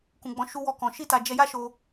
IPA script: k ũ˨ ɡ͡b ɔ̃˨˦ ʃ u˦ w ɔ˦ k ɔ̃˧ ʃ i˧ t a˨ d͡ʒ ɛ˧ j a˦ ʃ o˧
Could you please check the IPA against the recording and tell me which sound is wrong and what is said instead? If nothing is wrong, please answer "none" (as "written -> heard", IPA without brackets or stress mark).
none